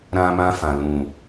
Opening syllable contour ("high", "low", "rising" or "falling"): high